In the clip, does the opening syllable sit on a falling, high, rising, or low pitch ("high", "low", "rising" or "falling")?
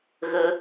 high